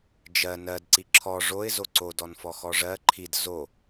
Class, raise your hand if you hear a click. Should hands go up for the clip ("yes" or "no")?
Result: yes